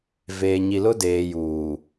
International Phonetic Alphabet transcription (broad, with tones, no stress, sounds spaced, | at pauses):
v eː˨ ɲ i˨ l ʊ˦ d eː˨ j uː˨